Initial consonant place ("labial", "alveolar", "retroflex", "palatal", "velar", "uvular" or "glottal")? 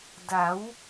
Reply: alveolar